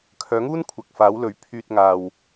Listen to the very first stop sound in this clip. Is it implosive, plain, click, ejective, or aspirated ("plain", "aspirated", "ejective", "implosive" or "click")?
aspirated